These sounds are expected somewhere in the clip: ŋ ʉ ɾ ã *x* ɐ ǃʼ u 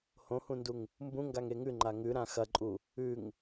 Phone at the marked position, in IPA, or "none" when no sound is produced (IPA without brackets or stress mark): x